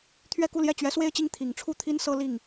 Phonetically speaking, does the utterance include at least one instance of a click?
no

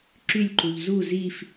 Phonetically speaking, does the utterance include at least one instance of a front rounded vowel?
yes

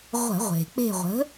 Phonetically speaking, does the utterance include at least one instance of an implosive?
no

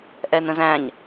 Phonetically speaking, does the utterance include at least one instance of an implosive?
no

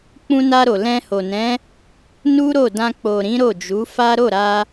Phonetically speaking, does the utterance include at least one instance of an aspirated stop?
no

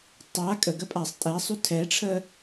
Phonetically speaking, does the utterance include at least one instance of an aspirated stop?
yes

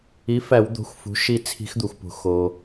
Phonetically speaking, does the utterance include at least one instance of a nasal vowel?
no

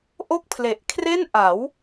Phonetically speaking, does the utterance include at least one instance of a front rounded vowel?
no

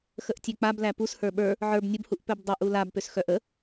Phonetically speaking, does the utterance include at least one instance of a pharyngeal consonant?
yes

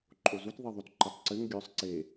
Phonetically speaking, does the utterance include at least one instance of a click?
yes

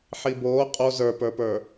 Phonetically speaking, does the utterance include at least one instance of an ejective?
yes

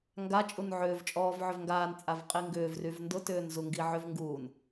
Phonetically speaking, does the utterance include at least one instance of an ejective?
yes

